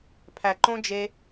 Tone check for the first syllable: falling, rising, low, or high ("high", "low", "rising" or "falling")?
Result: low